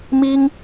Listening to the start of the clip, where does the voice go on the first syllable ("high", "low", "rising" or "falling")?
high